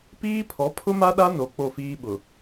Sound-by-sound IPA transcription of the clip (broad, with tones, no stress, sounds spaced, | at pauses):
p iː˦ pʰ ɔ˨˦ pʰ ʊ˦ m a˦ ɗ a˦ n o˨ k͡p o˦˨ f iː˦ ɓ ʊ˨